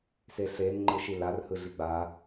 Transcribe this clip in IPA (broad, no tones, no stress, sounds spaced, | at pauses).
s e ɬ e n ŋ͡ǃ ɯ ʃ i l a r h ɯ ɮ i ɡ͡b a